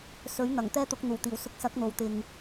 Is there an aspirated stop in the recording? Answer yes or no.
no